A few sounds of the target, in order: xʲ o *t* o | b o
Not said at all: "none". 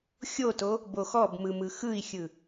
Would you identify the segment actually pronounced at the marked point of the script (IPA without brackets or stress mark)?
t